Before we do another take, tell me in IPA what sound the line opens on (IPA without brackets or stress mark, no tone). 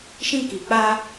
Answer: ʃ